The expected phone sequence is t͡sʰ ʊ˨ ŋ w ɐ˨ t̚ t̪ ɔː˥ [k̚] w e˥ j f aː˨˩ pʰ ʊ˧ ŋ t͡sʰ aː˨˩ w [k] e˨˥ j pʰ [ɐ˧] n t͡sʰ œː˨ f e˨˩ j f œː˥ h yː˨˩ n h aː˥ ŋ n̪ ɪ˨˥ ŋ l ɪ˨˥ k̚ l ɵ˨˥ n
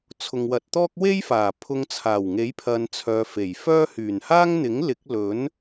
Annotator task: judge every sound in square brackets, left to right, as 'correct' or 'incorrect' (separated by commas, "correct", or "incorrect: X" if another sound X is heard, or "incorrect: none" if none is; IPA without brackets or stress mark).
correct, incorrect: ŋ, incorrect: ɐ˨